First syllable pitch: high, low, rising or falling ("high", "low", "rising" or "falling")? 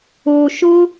low